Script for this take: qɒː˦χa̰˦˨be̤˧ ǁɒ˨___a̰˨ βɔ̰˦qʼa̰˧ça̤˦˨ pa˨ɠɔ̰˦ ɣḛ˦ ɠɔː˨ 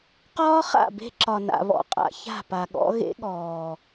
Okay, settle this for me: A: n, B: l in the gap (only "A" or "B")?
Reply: A